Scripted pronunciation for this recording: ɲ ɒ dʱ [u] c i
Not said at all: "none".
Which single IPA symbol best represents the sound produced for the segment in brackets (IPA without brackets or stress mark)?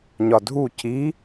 u